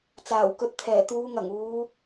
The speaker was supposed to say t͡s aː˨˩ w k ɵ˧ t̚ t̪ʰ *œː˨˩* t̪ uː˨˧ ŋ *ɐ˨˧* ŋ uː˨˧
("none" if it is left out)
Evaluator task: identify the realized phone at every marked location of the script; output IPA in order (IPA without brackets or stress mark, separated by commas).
ɛː˨˩, ɐ˨˩